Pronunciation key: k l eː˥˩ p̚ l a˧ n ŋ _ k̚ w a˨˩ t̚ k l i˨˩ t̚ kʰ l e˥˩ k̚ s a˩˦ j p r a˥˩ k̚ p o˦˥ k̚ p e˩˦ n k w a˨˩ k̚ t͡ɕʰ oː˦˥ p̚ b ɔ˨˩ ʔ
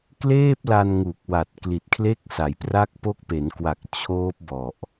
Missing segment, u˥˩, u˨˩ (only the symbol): u˨˩